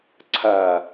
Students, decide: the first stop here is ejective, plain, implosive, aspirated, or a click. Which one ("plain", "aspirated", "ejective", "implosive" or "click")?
click